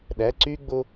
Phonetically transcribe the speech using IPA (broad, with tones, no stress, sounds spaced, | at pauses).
ɗ æ˩˧˩ ǀ yː˧ ɡ͡b o˧